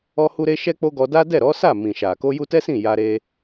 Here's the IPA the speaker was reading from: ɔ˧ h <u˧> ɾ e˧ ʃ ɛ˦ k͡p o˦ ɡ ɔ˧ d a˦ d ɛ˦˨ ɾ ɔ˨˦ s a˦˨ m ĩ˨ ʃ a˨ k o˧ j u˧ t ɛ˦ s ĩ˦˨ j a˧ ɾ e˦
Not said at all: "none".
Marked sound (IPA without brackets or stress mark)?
u˧